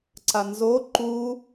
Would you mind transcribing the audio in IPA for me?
ǀanzo ǃu

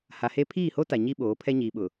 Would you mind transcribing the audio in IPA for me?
ha˨he˦ pʰiː˦˨ho˦ ta˨ɲi˦ɓoː˨˦ pʰɛ˦ɲiː˨ɓʊ˨

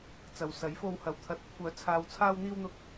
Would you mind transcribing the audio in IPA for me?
t͡sɐ˨w sɐ˨˥jfo˧whɐ˨˧w t̪ʰɐ˨t̚kʷʰœː˨˥ t͡sʰaː˨wt͡sʰaː˧w n̪iː˧wn̪ʊ˨˥k̚

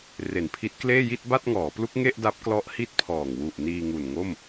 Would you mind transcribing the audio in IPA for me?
re˨˩npʰi˦˥t̚kleː˥˩ji˥˩t̚ ba˥˩t̚ŋɔː˩˦plu˦˥k̚ ŋe˥˩ʔda˦˥p̚klɔ˦˥ʔ hi˥˩t̚pʰɔː˨˩ŋ wu˨˩ʔ niː˧ŋu˨˩nŋo˥˩m

